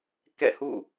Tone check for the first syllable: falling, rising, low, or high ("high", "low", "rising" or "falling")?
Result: falling